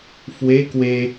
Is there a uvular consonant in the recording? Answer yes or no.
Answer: no